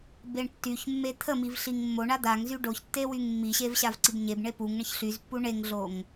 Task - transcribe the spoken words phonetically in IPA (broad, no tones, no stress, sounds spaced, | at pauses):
b e ɳ tː y ç mː e t̪ʰ ə m i v ɬ i ŋ mː o ɳ a d̪ a ŋ z y ɖ o ç tː e w y ŋ mː i ɕ e v ɕ a v ǀ i b ɲ e b ɳ e p u ŋ ɳ ə ç ɬ y z pː u ɳ e ŋ ɮ o ŋ